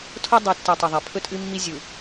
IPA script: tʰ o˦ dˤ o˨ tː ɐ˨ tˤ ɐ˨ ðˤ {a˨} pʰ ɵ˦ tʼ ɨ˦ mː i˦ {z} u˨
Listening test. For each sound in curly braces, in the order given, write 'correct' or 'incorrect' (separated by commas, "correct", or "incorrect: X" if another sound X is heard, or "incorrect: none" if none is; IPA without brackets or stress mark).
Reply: correct, incorrect: zʲ